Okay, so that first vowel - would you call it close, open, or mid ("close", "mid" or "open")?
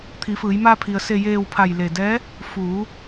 close